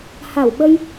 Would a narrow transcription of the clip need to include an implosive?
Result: yes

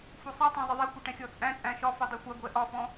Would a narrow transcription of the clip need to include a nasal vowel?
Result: yes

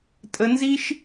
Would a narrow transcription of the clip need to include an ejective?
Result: yes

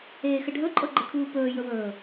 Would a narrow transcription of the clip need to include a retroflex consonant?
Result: yes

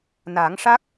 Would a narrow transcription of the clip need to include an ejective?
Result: no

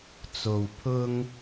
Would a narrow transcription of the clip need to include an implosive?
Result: no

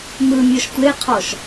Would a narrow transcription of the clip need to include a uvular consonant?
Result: yes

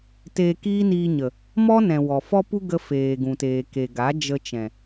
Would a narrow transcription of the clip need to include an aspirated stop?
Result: no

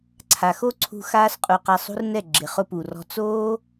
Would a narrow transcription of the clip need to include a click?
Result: yes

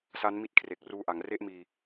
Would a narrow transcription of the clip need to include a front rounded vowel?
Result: no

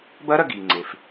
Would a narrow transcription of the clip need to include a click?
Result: yes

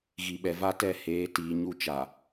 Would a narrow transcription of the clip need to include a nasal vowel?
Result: no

